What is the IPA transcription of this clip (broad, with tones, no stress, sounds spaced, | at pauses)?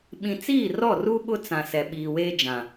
ɓ ĩ˨ t͡s iː˦˨ r ɔ˦˨ r u˦ ɓ ʊ˦ t͡s ã˨ s ɛ˨ ɓ iː˨ w eː˦ d͡ʒ ã˨